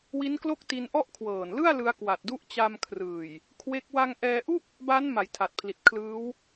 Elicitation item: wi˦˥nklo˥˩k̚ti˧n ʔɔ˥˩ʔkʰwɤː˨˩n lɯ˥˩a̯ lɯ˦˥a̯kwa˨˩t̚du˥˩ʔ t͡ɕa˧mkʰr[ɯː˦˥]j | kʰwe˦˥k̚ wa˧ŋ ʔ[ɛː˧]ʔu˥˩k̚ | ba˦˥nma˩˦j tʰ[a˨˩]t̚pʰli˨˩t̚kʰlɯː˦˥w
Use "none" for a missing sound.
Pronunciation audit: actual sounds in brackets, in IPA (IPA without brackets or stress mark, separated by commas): ɯː˨˩, ɛː˧, a˨˩